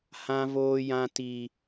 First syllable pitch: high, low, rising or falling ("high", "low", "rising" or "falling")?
high